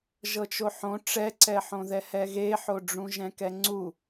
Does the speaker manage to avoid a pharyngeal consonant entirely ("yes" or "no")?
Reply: no